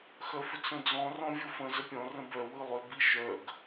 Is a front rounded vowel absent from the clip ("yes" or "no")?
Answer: no